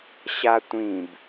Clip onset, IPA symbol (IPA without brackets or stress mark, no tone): ɕ